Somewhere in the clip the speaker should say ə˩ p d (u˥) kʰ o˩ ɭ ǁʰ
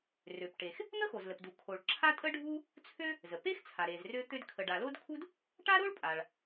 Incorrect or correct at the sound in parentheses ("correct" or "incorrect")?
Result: incorrect